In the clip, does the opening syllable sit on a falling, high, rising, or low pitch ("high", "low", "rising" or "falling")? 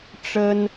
high